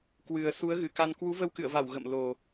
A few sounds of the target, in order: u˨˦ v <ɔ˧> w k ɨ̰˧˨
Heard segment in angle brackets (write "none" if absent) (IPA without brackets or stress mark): ə˧